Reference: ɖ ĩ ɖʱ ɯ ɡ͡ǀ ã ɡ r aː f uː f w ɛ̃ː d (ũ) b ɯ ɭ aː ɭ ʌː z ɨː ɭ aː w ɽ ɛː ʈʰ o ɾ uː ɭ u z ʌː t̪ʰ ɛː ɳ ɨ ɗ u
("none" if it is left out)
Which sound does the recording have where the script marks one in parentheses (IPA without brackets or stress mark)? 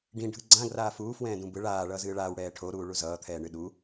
ũ